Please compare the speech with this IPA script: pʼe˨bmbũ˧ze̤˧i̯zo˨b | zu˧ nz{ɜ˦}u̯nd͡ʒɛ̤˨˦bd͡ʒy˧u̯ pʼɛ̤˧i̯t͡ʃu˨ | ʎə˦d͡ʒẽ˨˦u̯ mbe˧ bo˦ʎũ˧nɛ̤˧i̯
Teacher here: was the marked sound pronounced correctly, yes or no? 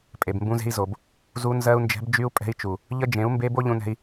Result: no